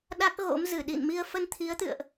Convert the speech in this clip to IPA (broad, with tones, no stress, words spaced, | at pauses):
ɗa˦˥k̚ɣo̰˧˥m zɨ˧˩ɗḭ˧˨nmi˧ə̯ fə˧nt̪ʰi˨˦ə̯t̪ɨ̰˧˨ə̯ʔ